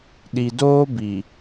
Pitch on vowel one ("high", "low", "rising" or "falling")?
low